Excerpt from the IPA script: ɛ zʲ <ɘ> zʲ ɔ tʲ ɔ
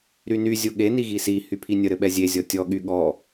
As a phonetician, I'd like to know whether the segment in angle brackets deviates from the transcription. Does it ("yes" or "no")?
yes